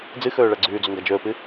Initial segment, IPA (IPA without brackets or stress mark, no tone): d͡z